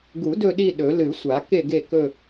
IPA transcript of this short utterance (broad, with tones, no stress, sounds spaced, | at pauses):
ɡ u˨˩˦ d ɵ˦˨ ɗ i˦˨ ɗ ɵ˨˩˦ l ɨ˨˩˦ sʷ a˨˩˦ k e˦˨ ɡ e˦˨ k ɵ˦˨